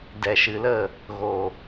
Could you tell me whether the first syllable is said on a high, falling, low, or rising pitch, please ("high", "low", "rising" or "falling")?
low